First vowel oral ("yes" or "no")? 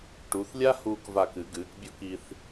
yes